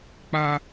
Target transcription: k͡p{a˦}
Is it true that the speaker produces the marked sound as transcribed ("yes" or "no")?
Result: yes